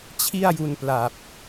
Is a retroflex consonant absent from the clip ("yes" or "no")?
yes